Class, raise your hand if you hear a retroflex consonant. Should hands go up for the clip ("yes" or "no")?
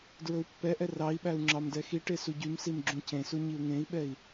yes